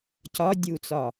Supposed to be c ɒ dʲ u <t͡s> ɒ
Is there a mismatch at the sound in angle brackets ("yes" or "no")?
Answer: no